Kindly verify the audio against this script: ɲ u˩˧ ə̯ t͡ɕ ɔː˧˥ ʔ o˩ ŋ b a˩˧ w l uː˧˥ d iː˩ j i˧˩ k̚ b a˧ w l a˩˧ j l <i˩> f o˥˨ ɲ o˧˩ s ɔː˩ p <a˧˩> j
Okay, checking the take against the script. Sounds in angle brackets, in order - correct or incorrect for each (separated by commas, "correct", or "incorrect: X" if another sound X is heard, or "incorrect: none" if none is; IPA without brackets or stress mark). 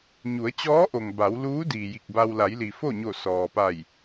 correct, correct